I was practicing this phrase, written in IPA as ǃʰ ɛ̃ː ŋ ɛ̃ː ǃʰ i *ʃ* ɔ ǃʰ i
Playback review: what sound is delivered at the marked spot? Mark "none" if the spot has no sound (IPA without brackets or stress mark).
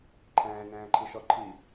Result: ʃ